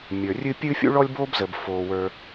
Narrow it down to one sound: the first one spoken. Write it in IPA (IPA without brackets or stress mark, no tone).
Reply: mʲ